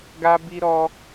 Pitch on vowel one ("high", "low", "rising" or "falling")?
high